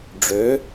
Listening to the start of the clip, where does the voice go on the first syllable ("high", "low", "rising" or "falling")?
rising